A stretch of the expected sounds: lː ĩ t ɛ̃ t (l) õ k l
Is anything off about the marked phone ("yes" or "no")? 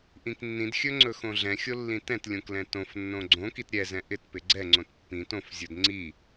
yes